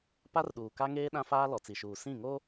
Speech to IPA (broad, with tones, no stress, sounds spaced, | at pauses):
p a˦ r ɗ uː˨ k a˦ ŋ eː˦ ɗ ã˦ f aː˦ l ɔ˨ t͡s i˨ ʃ uː˨ s ĩ˦˨ ŋ o˦